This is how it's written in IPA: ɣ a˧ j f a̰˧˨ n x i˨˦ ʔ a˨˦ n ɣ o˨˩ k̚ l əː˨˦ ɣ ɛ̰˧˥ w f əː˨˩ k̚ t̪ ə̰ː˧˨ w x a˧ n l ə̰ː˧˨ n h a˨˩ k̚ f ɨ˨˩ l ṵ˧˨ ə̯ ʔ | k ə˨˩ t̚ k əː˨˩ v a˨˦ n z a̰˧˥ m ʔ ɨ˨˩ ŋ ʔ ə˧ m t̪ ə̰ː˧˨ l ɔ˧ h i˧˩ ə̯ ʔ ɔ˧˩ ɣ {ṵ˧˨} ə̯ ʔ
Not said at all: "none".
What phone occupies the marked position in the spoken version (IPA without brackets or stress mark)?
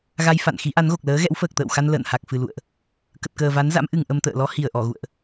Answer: ṵ˧˨